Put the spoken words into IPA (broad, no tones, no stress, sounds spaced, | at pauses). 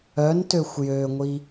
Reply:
œ n t ø xʷ j ø ŋʷ i